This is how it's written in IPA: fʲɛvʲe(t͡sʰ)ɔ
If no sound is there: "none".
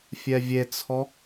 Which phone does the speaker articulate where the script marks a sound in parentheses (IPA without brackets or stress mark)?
t͡sʰ